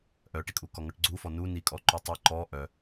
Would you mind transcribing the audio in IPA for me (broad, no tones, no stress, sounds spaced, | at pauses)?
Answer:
ʔ œ ʈ i kʼ u k ɔ ŋ ɔ ʈ ɡ͡ǀ u f ɔ n u n i kʼ ɔ ǃ u tˤ i ǃ ɔ ʔ œ